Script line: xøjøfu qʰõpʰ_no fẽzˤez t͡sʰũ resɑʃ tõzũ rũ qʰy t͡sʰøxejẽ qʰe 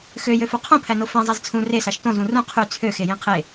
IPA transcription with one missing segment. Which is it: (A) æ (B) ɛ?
A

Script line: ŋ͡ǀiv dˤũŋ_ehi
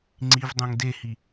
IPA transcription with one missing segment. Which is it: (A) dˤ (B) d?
B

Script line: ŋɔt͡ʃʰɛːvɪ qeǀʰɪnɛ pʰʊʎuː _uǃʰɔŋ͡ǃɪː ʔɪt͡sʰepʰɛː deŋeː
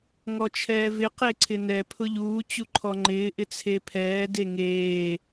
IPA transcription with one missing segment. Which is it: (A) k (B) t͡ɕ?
B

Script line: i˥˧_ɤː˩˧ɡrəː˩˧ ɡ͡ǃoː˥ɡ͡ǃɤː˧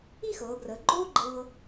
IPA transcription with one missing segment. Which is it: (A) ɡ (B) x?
B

